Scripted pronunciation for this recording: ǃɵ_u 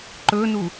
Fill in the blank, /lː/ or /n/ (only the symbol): n